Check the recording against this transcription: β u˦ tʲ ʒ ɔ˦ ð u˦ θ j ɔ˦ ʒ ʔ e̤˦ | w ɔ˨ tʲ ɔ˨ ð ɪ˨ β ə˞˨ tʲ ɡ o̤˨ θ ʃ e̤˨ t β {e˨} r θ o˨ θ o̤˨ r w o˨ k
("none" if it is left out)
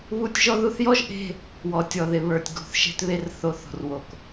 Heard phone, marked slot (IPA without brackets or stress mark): e˨